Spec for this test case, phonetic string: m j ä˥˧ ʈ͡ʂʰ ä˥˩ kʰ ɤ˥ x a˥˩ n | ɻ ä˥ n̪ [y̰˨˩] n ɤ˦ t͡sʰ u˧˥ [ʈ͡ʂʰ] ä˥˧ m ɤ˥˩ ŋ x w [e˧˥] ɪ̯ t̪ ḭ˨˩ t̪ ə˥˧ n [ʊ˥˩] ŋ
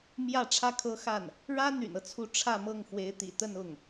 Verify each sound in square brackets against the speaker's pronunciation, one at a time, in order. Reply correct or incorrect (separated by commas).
correct, correct, correct, correct